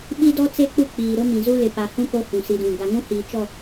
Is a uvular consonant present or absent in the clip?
absent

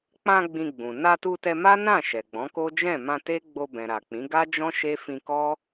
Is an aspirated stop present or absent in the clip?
absent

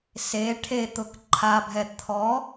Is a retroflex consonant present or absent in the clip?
present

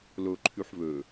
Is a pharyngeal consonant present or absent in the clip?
present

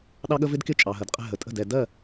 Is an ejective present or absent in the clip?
present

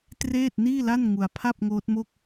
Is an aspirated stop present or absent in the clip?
present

